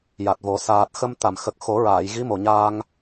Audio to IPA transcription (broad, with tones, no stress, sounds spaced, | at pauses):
j a˨˩ t̚ v o˨˩˦ s aː˨˩ t̚ x ə˧ m t̪ a˨˩˨ m x ə˨˩ k̚ x o˨˩˦ ɹ aː˨˩˨ j ɣ i˧˥ m o˨˩ ɲ aː˧ ŋ